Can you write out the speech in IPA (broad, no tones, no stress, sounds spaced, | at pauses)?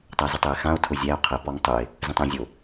tˤ æ z o tˤ ɛ e̯ x ã o̯ tʰ ʊ zʲ æ o̯ qʰ ə p ɔ ŋ tˤ ʊ e̯ | z ə̃ tˤ æ̃ zʲ o